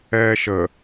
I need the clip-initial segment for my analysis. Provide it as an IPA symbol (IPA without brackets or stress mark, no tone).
ɛː